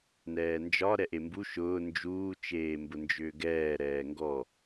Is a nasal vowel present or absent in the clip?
absent